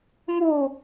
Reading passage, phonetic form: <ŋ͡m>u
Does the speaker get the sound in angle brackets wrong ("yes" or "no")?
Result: yes